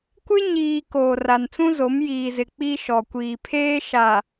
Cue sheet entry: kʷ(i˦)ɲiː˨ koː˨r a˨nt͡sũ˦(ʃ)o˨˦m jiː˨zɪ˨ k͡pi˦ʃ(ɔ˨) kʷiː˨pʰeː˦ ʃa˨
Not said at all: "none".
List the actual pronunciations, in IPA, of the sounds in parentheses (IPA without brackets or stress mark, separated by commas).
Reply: ɪ˦, z, ɔ˨